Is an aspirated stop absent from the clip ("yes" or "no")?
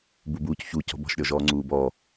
yes